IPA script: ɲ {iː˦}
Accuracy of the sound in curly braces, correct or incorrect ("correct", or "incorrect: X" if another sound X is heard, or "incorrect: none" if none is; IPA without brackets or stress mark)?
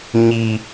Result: incorrect: i˦